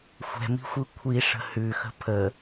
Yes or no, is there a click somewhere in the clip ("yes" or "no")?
no